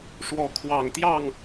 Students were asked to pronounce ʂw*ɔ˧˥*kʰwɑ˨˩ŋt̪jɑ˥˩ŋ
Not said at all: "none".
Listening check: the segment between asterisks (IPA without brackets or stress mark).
ɔ˧˥